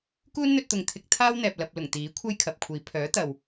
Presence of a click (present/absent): absent